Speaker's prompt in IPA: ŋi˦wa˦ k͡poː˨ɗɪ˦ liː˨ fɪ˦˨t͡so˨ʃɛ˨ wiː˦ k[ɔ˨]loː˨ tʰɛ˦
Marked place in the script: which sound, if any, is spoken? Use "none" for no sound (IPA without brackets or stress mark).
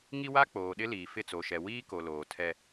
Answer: o˨